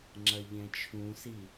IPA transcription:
ŋ͡ǁɐʎɛ̃t͡ʃʰũsi

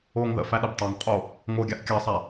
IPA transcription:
oːŋðə̰fæ ɗəbtˤaŋqʼo | ŋoːɡʲaʔkʲɑsˤæ

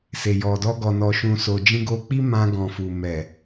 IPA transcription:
se˨jɔ˨dɔ˧ ɡɔ˨nɔ˨ʃũ˨so˨ d͡ʒĩ˧ɡo˧ k͡pi˦mã˧ ɡɔ̃˨fu˨ mɛ˨

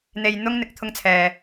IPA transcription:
n̪e˧jn̪ʊ˥ŋn̪ɪ˨˥k̚ t̪ʰʊ˥ŋt͡sʰɛː˧

